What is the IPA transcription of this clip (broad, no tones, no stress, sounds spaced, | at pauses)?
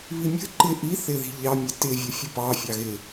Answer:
β i mʲ ə̤ ǃ ɪ ʔ i θ ɪ ð i̤ ʎ ɑ mʲ ə t ɪ vʲ ʌ fʲ ʊ p ɑ fʲ ɑ ɣ ɪ